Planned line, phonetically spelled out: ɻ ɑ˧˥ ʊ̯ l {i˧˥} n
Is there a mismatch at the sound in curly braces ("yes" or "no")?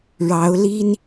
yes